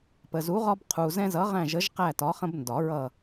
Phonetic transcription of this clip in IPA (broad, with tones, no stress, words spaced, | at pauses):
pə˨zu˨˥ʁɒ˦b qʰu˨ zɛ̃˦zʌ˨˥ʁæ̃˦˨ ʒə˨˥ʒ qæ˦˨tɒ˨˥χə̃˦b ndɒ˨˩˦ɹʌ˦˨